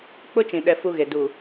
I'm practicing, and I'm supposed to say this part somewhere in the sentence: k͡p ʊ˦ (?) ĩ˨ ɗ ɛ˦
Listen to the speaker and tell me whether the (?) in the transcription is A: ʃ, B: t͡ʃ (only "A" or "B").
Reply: B